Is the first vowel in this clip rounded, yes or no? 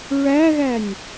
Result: no